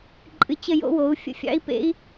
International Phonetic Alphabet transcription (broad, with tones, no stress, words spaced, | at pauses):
ǃʼɨ˨t͡ɕə˦˨ jo̰˦wo˨˦u̯ fʲə̰˦fʲɑ̰˦i̯pḛ˦i̯